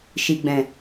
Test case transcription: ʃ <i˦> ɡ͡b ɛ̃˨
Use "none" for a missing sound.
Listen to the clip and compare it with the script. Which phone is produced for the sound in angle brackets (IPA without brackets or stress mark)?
i˨